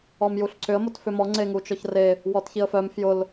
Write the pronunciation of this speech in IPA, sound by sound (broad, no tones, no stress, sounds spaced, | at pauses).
ɔ m j u ɬ ǀ ʏ ə̯ m o t f ʏ m ɔ ŋ͡ǀ e ŋ u t͡ʃ ɔ ç r e | w ɔ t ç i ə̯ f œ m f j ʊ l